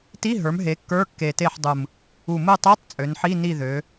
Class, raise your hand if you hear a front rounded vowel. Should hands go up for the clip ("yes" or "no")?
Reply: yes